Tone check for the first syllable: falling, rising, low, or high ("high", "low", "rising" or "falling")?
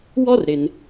high